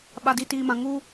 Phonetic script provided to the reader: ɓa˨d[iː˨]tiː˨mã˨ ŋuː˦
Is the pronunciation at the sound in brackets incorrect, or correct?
incorrect: i˨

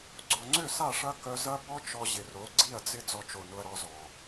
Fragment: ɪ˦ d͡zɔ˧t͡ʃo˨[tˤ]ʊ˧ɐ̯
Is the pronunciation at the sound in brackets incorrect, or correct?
incorrect: n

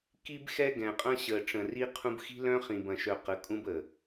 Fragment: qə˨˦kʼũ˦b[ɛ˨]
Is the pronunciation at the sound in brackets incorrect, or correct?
incorrect: ə˨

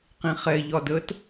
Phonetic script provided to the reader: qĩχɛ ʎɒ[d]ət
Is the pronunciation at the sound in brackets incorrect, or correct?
correct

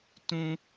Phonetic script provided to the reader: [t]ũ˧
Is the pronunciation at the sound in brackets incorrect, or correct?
correct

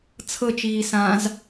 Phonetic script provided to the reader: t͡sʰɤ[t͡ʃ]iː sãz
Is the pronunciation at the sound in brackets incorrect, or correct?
correct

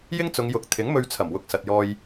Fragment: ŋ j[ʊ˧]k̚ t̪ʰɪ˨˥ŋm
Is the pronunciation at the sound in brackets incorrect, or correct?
incorrect: ʊ˨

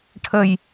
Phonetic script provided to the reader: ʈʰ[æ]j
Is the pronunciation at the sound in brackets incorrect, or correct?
incorrect: ə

